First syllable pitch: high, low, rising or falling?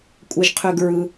low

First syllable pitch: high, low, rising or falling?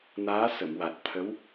rising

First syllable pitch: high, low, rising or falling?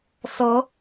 rising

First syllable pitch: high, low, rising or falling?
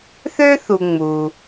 high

